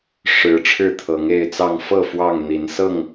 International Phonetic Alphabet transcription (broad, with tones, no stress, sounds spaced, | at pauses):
ʂ ɻ̩˨˦ ʈ͡ʂʰ ɻ̩˥˨ t̪ʰ ɤ˨˦ ŋ e˥˨ ɪ̯ t͡s ɑ˥˨ ŋ f ɤ˥˨ f w ɑ˥˨ ŋ n̪ i˨˦ n s ɤ˥˨ ŋ